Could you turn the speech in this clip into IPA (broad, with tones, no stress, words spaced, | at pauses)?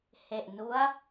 he˨˩ʔnu˦˥a̯